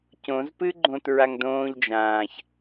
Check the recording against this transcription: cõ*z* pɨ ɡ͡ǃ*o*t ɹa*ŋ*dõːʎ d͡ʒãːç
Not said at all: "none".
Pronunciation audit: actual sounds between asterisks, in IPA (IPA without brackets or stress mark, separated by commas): z, õ, ŋ